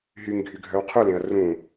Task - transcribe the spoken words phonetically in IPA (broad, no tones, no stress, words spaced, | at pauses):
ɦyŋɡʱyɡʱœw qʰulẽɐ̯ rũ